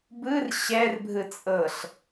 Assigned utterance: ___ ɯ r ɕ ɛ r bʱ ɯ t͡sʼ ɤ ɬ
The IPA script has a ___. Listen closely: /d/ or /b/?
b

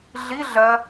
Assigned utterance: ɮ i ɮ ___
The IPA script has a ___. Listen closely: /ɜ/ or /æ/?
ɜ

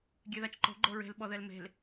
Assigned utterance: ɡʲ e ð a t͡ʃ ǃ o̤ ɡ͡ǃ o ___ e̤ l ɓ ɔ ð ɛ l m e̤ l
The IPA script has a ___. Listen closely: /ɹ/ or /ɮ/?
ɹ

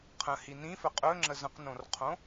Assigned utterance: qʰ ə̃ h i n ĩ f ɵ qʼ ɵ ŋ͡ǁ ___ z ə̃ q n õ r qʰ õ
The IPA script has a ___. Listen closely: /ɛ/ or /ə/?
ə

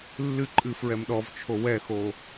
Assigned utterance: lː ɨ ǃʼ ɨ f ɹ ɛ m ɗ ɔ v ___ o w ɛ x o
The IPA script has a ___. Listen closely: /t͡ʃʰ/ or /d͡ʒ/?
t͡ʃʰ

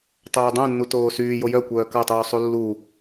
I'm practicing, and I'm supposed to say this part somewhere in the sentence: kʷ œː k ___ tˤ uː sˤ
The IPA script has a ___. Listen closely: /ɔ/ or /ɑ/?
ɑ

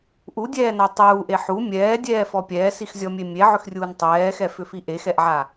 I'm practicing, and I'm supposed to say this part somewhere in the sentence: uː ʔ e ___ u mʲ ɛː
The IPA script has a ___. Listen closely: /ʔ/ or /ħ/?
ħ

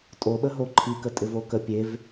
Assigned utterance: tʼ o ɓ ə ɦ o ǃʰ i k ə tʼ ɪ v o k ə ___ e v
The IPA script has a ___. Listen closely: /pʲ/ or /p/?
pʲ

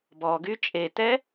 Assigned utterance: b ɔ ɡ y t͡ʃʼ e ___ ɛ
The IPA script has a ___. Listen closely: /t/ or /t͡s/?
t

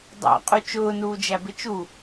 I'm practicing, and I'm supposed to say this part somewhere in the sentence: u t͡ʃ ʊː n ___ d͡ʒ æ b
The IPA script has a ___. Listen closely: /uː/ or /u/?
uː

